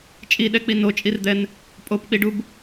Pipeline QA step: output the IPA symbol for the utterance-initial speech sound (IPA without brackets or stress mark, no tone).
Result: t͡ʃʼ